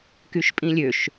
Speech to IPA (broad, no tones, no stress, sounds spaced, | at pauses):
k y ʃ pʼ ĩ lʲ ø ʃ